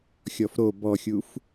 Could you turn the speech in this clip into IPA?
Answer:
xʲ ɔ f ɾ o b ɔ xʲ u f

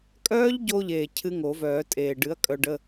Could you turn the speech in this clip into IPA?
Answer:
kʼ œː˦˥ ʎ ɟ o˧ ʎ eː˨˩ cʰ ɨ˦˥ ŋ o˨˩˦ v œː˨˩˦ tʼ eː˨˩ ɖ ɨ˨˥ ɐ̯ kʼ œ˧ ɖ ə˧˥˧

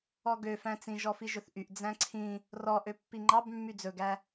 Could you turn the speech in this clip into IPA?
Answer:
ɔ ɡ ø f æ̃ t͡s ĩ ʒ ɔ f i ʒ ɵ θ ʔ y ʔ d͡z æ̃ ǀʰ ĩ | r ɔ ʔ ø pː i ŋ͡ǃ ɑ b mː y d͡z ɵ ɡ æ

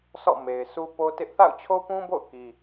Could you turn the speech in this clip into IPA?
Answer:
sʰ ɔ̰˦˨ m e˨ ɪ̯ s u˦ p o˦ t ɪ˦ ʔ θ a̰˦˨ ʊ̯ t͡ɕʰ o˦ p ũ˦ b o̰˦˨ ʊ̯ k i˦

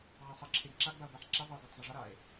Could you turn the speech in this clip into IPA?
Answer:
ʕ a sˤ ʌ ǁʰ e ɡ ǁ a ɡ b a o̯ b a ħ ǁ e ðˤ e o̯ ɡ a tˤ zˤ ə ʐ ʌ ɾ a e̯

